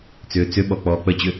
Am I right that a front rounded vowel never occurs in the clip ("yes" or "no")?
no